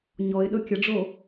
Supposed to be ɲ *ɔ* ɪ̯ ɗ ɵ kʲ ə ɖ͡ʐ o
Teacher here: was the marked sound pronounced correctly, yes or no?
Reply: yes